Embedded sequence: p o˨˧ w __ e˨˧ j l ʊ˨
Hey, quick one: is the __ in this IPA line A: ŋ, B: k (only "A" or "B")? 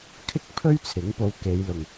B